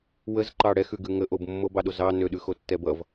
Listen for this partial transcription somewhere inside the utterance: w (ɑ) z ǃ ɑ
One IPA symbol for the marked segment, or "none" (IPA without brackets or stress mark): ə